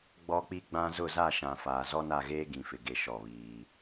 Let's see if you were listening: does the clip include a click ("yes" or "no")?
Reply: no